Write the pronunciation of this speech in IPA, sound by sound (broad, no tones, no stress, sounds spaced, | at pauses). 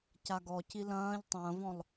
c a ɡ ɔ c i l ɐ̃ː ʎ tˤ ɐ̃ː v ɔ̃ lˠ